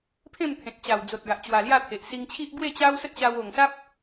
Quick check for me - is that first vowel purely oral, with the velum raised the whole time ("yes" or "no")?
no